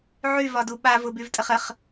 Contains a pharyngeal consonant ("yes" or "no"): yes